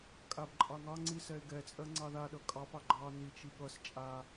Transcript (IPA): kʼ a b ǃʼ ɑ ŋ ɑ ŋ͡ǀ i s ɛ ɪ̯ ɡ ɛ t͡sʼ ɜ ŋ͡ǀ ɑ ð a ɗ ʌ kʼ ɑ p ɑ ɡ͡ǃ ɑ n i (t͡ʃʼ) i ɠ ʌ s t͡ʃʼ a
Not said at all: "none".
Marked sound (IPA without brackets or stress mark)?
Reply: t͡ʃ